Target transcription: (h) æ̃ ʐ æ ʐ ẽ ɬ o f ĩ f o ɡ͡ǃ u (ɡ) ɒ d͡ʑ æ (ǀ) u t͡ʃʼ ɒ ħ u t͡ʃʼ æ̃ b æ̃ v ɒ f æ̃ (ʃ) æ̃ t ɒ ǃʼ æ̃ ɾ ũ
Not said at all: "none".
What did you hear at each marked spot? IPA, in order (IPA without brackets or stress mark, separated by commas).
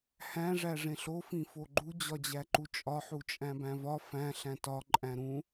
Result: h, d͡ʑ, ǃ, ɬ